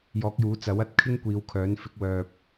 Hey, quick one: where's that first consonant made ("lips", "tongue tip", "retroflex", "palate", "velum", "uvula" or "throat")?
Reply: palate